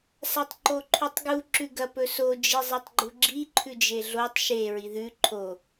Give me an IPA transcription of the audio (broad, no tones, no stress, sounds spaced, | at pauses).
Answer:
s a tˤ ǃ o ǃʰ ʉ tˤ ɡ u ǁ ʉ ɡ ɐ p ɵ s o d͡ʒ i zˤ e tˤ ɡ͡ǃ u ɡ͡ǁ i ǃʰ ʉ d͡ʒ e ɮ o tˤ ʃ e ɹ i ð ʉ ǃʰ o